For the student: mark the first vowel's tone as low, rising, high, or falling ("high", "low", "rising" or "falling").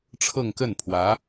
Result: falling